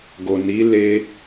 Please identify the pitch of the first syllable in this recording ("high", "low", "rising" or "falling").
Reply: low